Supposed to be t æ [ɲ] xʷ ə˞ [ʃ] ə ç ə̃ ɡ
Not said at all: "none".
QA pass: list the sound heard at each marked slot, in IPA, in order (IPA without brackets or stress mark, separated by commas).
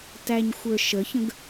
ɲ, ʃ